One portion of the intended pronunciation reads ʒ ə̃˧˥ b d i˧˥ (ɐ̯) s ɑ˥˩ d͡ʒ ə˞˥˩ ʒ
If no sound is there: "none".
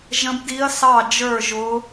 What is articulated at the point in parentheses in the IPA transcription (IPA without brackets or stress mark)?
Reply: ɐ̯